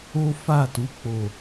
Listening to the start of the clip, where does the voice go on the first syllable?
high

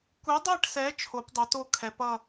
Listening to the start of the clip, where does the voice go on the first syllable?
rising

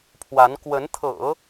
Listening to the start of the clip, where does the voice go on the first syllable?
rising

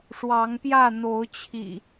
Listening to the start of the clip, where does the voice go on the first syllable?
rising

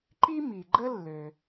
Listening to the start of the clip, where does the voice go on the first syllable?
high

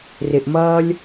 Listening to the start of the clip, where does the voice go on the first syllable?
low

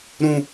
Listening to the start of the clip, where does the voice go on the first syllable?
low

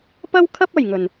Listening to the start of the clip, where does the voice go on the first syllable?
high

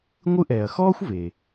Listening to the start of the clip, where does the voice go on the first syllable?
high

